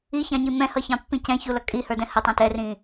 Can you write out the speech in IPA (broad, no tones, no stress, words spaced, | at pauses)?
içɑ̃ɲi mɛ̃hʌçɑ̃pːĩ cɛ̃çulʌ kʼihə˞dɛ̃ hətˤɑ̃ tɛrĩ